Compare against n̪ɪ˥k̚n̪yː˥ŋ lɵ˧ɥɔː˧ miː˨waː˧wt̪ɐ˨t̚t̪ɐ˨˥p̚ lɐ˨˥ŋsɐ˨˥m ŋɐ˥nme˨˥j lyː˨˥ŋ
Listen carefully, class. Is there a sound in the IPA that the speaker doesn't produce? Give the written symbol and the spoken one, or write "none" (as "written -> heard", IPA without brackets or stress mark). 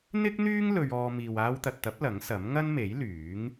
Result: none